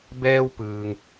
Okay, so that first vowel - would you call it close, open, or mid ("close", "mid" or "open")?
mid